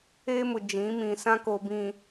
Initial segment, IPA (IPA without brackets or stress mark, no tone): eː